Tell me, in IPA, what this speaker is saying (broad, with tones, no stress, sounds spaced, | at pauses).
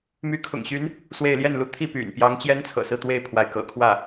m y˧˥ kʰ ʊ̰˨˩ ŋ ɕ y˧˥ n | s w e˥˧ ɪ̯ l j ɛ˥˩ n l u˧˥ t̪ʰ i˥˩ p y̰˨˩ n p j ɑ˧˥ ŋ t͡ɕ j ɛ˥ n t͡sʰ ɤ̰˨˩ s ɹ̩˥˧ t̪ w e˥˩ ɪ̯ pʰ w a˧˥ ɪ̯ k ɤ̰˨˩ kʰ w ä˥˩